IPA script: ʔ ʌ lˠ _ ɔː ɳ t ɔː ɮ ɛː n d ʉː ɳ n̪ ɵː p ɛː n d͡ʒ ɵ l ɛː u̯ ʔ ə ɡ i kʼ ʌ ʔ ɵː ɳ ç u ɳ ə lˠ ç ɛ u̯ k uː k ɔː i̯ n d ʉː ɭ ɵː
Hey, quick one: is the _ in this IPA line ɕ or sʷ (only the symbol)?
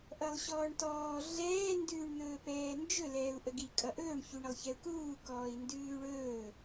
ɕ